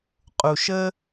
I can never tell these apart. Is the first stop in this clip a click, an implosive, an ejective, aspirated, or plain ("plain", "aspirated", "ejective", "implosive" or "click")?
ejective